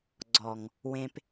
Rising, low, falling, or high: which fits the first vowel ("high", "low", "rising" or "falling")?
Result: low